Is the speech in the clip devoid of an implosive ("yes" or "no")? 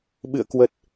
no